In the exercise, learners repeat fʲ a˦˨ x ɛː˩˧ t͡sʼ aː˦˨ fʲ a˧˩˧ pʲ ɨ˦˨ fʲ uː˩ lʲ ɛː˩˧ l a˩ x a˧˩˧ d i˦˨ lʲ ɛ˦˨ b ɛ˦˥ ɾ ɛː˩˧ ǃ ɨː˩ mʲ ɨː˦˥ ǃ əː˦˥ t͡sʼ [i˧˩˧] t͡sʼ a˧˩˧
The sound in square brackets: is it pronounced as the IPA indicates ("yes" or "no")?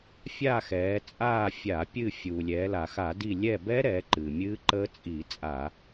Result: yes